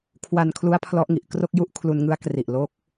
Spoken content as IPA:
kʰ w a˧ n kʰ l u˦˥ a̯ pʰ l ɔ˦˥ ʔ ŋ i˨˩ ʔ k r o˥˩ k̚ j u˥˩ ʔ kʰ l u˧ n ŋ ɯ˦˥ a̯ k r i˨˩ ʔ l o˦˥ k̚

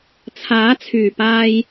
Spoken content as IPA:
t͡sʰ aː˨˥ t͡sʰ yː˨˩ p aː˧ j

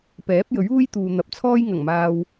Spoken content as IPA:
p ɛː˨˥ p̚ j ɵ˨˥ ɥ uː˥ j t̪ uː˨ n̪ ɐ˨ p̚ t͡sʰ ɔː˥ j ŋ ɐ˨˩ ŋ m aː˨ w

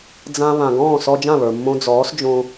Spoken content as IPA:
d͡z ã˧ β ã˩ ɡ ɔ̃ː˥˩ s ɔ˧ d͡ʒ ã˥˩ β ə˞˩ mː õ˧ d͡z ɔː˩˥ s d͡ʒ õ˧

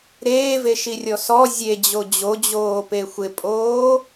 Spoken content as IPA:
ɾ eː v e ʃ i rʲ ɔ s ɔ zʲ e d͡ʑ o d͡ʑ o d͡ʑ oː p e xʷ ɪ pʼ oː

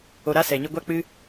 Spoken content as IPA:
o˨ ɾ a˧ s ɛ˨ ɲ ɨ˧ ɡʷ a˦ k͡p ɨ˦

